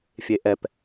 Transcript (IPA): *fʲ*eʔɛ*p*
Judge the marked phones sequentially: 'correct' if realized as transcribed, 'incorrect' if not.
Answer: correct, correct

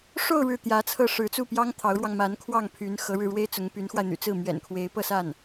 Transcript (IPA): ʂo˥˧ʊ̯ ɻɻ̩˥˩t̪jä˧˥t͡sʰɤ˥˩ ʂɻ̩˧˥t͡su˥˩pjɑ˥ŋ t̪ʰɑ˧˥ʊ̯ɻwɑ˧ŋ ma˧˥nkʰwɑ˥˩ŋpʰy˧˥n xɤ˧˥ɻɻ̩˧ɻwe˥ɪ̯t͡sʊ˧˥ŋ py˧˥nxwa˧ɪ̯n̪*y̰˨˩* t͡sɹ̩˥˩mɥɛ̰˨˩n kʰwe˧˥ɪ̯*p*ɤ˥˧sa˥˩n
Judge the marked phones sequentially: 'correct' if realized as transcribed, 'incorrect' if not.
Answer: correct, correct

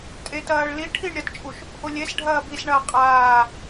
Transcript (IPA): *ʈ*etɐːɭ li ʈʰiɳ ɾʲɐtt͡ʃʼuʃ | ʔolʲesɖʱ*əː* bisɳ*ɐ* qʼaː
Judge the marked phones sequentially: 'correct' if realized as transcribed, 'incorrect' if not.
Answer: incorrect, incorrect, incorrect

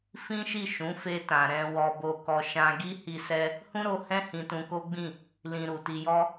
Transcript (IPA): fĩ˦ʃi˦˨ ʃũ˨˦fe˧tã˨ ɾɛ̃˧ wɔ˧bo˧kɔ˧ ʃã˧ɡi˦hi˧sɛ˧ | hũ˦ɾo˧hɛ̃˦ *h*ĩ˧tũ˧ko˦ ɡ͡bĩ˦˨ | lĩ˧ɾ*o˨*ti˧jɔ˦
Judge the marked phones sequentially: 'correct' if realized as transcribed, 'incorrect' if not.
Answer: correct, incorrect

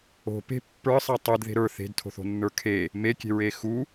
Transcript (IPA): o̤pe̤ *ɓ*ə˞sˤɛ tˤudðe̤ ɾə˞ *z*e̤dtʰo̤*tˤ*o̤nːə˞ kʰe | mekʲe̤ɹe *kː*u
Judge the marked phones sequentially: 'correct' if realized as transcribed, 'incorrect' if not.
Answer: incorrect, incorrect, incorrect, incorrect

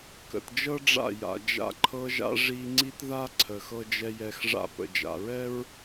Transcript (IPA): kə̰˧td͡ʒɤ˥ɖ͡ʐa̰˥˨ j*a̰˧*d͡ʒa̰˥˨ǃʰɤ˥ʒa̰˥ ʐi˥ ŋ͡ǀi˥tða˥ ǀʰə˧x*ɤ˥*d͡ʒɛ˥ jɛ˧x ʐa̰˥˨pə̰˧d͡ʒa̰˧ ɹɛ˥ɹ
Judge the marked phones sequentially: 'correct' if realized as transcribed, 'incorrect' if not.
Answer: correct, correct

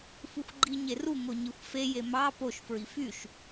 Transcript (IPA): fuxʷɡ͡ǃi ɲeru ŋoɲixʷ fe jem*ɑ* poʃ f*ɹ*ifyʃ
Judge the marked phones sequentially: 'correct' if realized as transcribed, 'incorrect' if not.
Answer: correct, correct

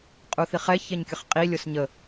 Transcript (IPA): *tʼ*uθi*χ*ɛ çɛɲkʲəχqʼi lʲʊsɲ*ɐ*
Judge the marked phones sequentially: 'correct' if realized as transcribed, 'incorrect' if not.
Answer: incorrect, correct, incorrect

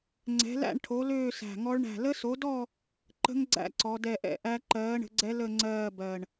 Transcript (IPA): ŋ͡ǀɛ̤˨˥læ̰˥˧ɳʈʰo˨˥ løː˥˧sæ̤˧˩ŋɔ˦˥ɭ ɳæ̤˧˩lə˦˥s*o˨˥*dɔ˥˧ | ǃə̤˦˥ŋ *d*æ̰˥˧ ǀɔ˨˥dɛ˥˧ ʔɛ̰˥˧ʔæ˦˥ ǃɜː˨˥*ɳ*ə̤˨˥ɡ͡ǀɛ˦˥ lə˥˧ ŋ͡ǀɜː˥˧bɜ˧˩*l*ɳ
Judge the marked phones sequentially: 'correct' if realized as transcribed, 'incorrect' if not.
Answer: correct, incorrect, correct, incorrect

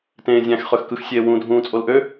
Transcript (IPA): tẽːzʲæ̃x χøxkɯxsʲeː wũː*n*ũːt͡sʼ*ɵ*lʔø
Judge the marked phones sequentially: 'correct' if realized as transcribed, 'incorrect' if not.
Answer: incorrect, incorrect

